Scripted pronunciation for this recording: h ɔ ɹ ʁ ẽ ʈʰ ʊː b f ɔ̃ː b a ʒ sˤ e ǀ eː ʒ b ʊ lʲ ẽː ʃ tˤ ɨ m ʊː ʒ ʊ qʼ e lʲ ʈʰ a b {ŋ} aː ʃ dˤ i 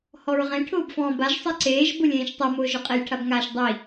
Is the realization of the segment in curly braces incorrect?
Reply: no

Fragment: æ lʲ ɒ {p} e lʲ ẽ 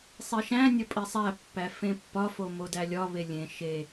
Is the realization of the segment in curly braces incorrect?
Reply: yes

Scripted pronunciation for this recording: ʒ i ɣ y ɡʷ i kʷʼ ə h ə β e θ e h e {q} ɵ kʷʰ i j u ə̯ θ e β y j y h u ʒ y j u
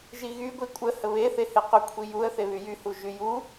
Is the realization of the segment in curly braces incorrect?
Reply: no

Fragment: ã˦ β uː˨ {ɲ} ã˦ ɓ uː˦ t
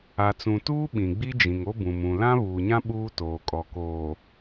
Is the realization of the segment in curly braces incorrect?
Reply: no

